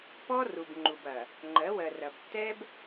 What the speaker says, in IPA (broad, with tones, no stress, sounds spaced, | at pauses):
p ɔ˦ r u˨ b ŋ͡ǃ u˨ b ɐ˨ | ŋ͡ǃ ɜ˨˦ w ɜ˨ r ɐ˨ b tː ɛ˦ b